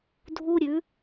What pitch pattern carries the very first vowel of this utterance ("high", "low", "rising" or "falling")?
high